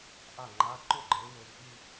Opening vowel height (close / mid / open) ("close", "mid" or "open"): open